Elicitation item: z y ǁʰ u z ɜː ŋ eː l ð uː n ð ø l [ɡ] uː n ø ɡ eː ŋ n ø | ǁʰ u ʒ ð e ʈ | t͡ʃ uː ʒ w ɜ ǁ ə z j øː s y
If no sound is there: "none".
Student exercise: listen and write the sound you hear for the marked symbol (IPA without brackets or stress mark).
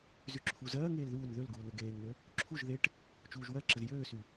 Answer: ɡ